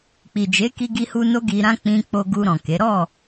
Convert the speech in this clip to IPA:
k͡pi˨d͡ʒe˨˦ki˧ ɡi˧hu˧ no˦ɡi˧ɾã˦ k͡pĩ˧k͡po˧ ɡu˧ ɾɔ̃˨ke˨˦ ɾɔ˦˨

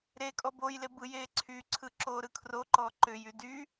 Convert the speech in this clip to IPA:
ɾe kʼɔbojle bɯjeː ǀʰyǀʰɯ ǁoːɾɯkʰroǃɔ ǃʏjy dy

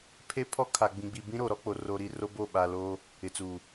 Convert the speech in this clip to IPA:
pʰe˦pʰɔ˦ kʰa˨ɡ͡bĩ˨ɡ͡bi˨ bĩ˦ɾo˨ɾɔ˦k͡po˨ ro˨ɾi˨ ro˦bo˦˨ɓa˨loː˦ | ɪ˨t͡suː˨

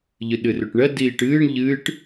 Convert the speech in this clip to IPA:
ʎɨɗɨrøʈɳɜ diːʈɨːɳ ʎɨːʈ

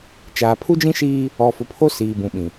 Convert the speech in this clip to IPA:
t͡ʃaː˨pʰu˦d͡ʒĩ˦ʃiː˦ | ɔ˨fʊ˨pʰo˦ siː˨bũ˨ɓĩ˨

